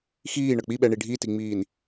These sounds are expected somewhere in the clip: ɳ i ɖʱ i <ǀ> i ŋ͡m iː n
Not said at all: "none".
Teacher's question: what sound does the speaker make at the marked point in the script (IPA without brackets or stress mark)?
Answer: t